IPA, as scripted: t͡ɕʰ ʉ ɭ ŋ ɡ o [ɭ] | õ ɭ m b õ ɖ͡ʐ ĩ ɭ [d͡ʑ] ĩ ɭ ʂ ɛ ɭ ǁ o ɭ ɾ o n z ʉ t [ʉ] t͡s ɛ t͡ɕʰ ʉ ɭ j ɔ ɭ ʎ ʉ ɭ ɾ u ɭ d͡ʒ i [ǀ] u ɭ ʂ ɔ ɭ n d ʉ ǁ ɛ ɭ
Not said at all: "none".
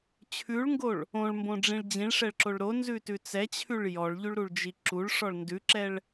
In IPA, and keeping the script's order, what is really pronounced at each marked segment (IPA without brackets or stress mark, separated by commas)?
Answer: ɭ, d͡ʑ, ʉ, ǁ